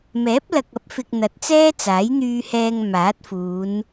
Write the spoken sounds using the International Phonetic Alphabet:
m ɛː˨˥ p̚ l ɐ˨ k̚ ɐ˨˥ p̚ f ɪ˨ k̚ n̪ ɐ˨˥ t̚ t͡s ɛː˥ t͡s aː˨˥ j n̪ yː˧ h ɛː˧ ŋ m aː˨˥ t̚ f uː˨˧ n

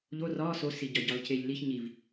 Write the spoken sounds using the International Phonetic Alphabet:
ʎ o r ɒ s o s i ɟ ɒ ɟ ɒ l c e ʎ l i ç ɲ i v

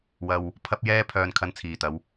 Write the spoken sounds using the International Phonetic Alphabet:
w ɐ˧ w | pʰ ɐ˥ p̚ j ɛː˥ pʰ œː˧ n kʰ ɐ˧ n t͡sʰ iː˨ t̪ ɐ˨˧ w

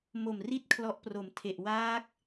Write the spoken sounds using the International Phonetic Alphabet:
m o˨˩ m r i˥˩ t̚ kʰ l ɔ˦˥ ʔ p r o˨˩ m tʰ e˨˩ ʔ w aː˦˥ k̚

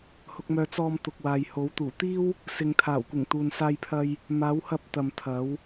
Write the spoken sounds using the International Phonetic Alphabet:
h ʊ˧ k̚ m œː˧ t͡s ɔː˧ m t̪ ʊ˨ k̚ w aː˨ j h o˨˥ w t̪ uː˨˩ t̪ iː˥ w | s ɪ˨ ŋ t̪ʰ aː˨˩ w kʷ ɪ˨˩ ŋ t̪ uː˨ n s aː˧ j pʰ ɐ˧ j | m aː˨˧ w h ɐ˧ p̚ t̪ ɐ˨ m t̪ʰ ɐ˨˥ w

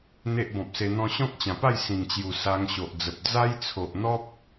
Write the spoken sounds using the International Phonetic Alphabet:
n̪ e˦ ʔ b ɔ̃˨ p̚ s e˧ n̪ ɔ̃˦ ɕ ɔ̃˦ k̚ t͡ɕ ã˨˩ p a˥˧ j s ĩ˨˩ ŋ t͡ɕ j u˨˩ s a˧ ŋ ɕ o˨ ʔ d͡z ə˨ p̚ d͡z a˦ j t͡sʰ o˨ ʔ n̪ ɔ˦ p̚

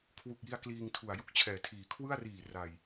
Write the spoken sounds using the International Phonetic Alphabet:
kʰ w u˨˩ k̚ j i˧ a̯ k l iː˧ ŋ tʰ u˨˩ a̯ j u˦˥ k̚ t͡ɕʰ ɛː˩˦ tʰ iː˩˦ kʰ w ɯ˥˩ a̯ r iː˨˩ r a˨˩ j

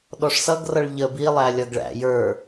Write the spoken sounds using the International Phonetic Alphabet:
ɗ ɔ ʂ s ʌ ɡ r ʌ ɭ ʎ ə b i lˠ æ lʲ ʌ ɡ ɭ æ̰ j ə˞

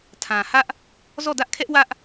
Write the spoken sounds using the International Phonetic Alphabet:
tʰ ã˨ h ä˦ ʔ | z ɔ˦˨ d ä˦ ʔ kʰ ɛ˦ ʔ w ä˦ ʔ

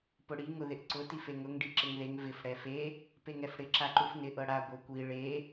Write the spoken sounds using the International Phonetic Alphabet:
p ʊ ɽ i ŋ ʊ ð ɪ ʔ ǀ ʊ t i f e ŋ ʊ ŋ ɖ i ǁ ɪ ŋ ð e ŋ v ɪ f ɽ ɛ f e | p e ŋ ɛ f ɽ ɪ ǁ a ǃ u f n ɪ ʔ ɤ ɽ a ɡʷ ɤ kʷ i ɭ e

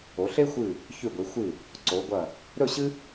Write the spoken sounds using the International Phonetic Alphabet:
o˩˧ ɬ e˥ xʷ ɨ˧˩ | ç ʉ˧˩ ɡʷ i˩˧ xʷ ɨ˧˩ | ǀ o˩˧ ɡʷ ɐ˧˩ | ɾ ɵ˥˧ ɕ ɨ˥

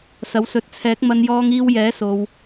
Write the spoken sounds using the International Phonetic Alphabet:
s ɐ˨˧ w s ɵ˨˥ t̚ t͡sʰ ɛː˨˥ k̚ m ɐ˧ n j ɔː˧ ŋ iː˧ w j ɛː˨˥ s o˧ w

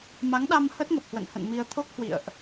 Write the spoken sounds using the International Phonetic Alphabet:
m a˨˦ ŋ ɗ a˧ m h ə˦˥ t̚ ŋ ə˨˩ p̚ h w ə̰˧˨ n h ə̰˧˨ n m i˧ ə̯ t̪ʰ o˦˥ k̚ h w ḭ˧˨ ə̯ ʔ

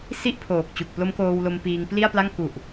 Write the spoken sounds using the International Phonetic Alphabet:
s i˥˩ ʔ pʰ oː˨˩ k̚ t͡ɕ u˨˩ k̚ p l o˦˥ m k oː˧ w l o˧ m p iː˧ ŋ p l i˥˩ a̯ p l a˥˩ ŋ k u˨˩ ʔ

